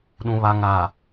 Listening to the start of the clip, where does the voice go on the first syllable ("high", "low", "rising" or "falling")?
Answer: low